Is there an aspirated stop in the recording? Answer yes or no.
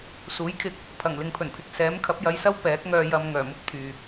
yes